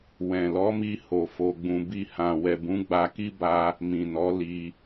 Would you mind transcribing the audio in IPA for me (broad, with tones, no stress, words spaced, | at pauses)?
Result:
wɛ̃˨ lɔ˨˦mi˧ ho˧fo˧ɡ͡bũ˧ bi˧hã˨ wɛ˨bũ˨˦ɡ͡ba˧ki˦ ba˦ | mĩ˨nɔ˨˦ li˧